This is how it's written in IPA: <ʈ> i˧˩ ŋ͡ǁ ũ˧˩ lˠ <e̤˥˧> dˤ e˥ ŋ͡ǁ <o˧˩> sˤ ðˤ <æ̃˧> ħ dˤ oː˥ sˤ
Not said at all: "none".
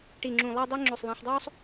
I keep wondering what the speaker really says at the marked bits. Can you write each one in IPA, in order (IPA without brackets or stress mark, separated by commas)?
ʈ, e˥˧, o˧˩, æ̃˧